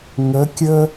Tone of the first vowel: rising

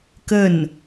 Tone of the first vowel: falling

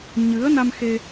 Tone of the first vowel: rising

